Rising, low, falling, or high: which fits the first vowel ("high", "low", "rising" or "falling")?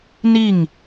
falling